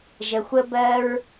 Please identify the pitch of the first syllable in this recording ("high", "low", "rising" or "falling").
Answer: low